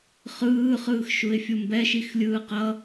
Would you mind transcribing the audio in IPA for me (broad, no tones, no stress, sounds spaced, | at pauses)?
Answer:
χ ɯː χ ɯː x ʃ u ɪ̯ fʲ u m b ɛ ʃ i x lʲ ɯː q ʌ